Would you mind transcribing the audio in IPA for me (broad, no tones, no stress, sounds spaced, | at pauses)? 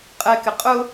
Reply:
qʼ ɛ k ɪ qʼ ʊ